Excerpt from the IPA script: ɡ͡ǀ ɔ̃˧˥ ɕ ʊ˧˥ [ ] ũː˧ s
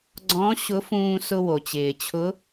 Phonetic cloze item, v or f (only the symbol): f